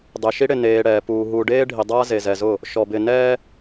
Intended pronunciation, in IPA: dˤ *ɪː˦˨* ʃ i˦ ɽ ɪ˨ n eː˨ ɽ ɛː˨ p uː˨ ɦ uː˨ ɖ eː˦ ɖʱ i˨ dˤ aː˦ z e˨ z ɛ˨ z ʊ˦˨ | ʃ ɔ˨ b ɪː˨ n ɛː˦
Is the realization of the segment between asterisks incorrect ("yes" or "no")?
yes